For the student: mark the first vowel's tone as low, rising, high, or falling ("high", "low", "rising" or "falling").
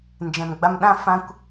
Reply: low